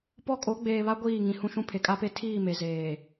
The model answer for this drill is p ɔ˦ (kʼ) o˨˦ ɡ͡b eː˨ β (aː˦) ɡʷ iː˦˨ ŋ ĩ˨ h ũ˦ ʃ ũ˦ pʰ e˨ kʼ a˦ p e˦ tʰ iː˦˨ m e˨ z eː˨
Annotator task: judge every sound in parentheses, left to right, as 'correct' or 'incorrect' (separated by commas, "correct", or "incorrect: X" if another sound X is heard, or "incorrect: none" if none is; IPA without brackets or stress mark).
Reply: correct, incorrect: a˦